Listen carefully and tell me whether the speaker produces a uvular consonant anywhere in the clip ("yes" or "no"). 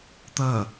no